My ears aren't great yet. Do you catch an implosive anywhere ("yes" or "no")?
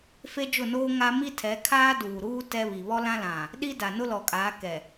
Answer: yes